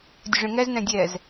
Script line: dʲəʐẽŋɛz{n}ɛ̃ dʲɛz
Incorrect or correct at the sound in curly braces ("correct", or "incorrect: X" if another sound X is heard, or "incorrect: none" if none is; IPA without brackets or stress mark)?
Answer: correct